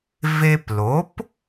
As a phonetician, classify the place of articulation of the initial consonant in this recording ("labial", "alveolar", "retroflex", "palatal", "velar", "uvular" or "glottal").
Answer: labial